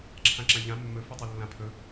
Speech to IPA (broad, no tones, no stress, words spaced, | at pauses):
ǁʰãǁãʎã mːɵ fitˤølːãpʰɵ